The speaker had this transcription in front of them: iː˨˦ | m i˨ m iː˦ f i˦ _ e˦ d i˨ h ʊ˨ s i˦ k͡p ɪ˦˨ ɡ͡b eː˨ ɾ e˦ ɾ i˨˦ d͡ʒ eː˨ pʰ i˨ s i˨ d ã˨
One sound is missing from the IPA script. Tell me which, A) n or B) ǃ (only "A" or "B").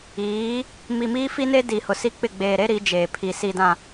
A